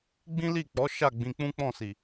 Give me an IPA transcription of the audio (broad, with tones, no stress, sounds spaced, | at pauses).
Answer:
ɡ͡b ĩ˦ l i˦˨ k͡p ɔ˨˦ ʃ a˦˨ ɡ͡b ĩ˧ k͡p ũ˦ k͡p ɔ̃˦˨ s i˨